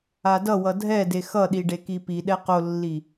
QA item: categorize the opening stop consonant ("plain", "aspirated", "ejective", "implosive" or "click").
plain